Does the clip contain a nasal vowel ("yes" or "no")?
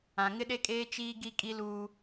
yes